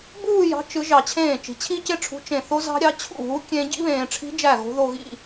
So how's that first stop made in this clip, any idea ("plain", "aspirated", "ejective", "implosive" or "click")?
plain